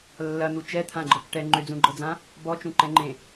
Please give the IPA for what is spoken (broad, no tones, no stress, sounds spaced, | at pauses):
lː ɐ n̪ u t͡ʃ ɛ t̪ʰ ã ɡ͡ǃ ɤ k ʈ ɛ ŋ͡ǃ ʏ d͡z ũ ɡ͡ǃ ɤ d͡z ã | b ɔ t͡ʃ ũ ǃ ɛ̃ ŋ͡ǃ ẽ